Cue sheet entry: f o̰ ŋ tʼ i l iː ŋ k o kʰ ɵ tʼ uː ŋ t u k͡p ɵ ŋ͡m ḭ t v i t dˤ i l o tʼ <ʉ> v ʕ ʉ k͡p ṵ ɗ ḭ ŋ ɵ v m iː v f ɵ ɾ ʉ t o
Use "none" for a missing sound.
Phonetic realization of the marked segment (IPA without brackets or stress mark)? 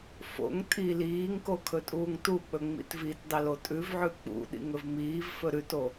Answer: ʉ